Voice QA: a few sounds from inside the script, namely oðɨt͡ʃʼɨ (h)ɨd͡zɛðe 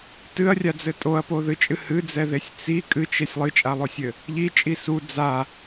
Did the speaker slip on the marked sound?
no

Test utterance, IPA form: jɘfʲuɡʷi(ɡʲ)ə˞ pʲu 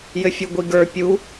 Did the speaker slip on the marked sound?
yes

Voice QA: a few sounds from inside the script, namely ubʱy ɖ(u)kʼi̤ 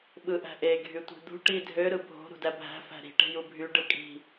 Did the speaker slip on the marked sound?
yes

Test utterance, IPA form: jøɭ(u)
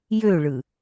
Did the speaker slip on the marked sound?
yes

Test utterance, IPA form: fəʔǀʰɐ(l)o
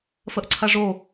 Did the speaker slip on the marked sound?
yes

